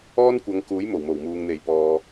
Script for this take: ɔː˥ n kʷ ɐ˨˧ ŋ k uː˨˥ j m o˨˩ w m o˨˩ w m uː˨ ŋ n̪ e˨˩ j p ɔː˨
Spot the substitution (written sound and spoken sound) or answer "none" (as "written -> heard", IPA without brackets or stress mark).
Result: none